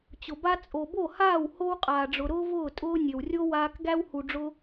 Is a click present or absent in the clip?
absent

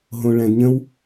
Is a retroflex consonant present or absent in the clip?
present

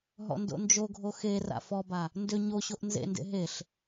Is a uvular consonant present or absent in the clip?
absent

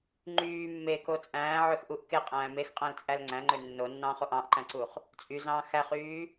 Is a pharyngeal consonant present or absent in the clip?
present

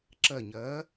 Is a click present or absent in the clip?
present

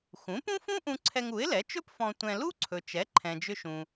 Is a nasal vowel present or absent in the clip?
present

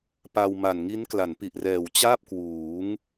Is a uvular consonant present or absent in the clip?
absent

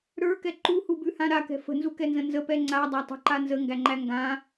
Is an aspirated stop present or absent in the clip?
absent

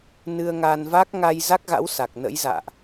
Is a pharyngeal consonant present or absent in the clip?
absent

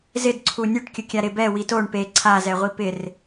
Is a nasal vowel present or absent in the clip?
absent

